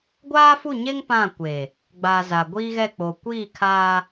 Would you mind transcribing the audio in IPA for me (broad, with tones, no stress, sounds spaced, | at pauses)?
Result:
ɡʷ aː˦ f u˦˨ ɲ e˦ ŋ p ã˦˨ kʷ e˨ | ɡ͡b a˨ z a˨ ɡʷ iː˦ ɣ ɛ˦˨ k͡p o˨ kʷ iː˦˨ kʰ aː˦